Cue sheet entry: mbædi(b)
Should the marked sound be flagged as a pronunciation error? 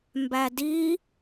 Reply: yes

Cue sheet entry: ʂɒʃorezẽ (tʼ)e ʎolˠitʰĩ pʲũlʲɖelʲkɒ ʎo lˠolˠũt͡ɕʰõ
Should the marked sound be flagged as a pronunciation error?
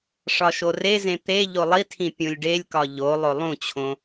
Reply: yes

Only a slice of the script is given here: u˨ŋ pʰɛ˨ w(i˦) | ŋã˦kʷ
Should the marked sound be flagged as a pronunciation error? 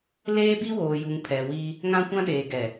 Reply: no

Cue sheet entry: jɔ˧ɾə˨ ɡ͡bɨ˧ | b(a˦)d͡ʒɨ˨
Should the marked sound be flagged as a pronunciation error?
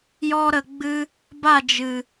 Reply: yes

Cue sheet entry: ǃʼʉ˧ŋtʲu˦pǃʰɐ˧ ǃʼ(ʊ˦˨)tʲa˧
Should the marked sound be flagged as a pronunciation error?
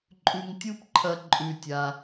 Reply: yes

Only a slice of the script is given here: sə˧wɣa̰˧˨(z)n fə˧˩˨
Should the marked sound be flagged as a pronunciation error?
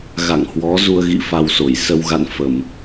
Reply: yes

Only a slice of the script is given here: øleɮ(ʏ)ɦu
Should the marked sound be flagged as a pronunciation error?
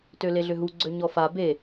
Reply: no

